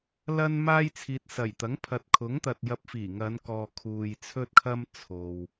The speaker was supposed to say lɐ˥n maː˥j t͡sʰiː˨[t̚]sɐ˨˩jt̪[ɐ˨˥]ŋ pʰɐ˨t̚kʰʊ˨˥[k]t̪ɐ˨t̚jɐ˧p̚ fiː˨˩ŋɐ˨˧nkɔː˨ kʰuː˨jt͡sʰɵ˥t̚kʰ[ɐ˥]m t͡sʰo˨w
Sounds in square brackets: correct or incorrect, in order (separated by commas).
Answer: correct, correct, incorrect, correct